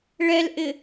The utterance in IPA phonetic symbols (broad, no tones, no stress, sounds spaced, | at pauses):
ɭ ɛ l ʔ ɪ